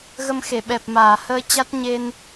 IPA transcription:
ɣə˧mxe˧˩ɓɛ˨˩p̚maː˧˩ həː˧ t͡ɕa˦˥t̚ɲe˧n

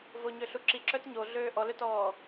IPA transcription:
voɲøɬuǁi ǁœtɲoɮøː ʔɔløtɔː

